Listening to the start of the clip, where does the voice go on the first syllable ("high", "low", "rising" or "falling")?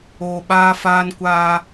low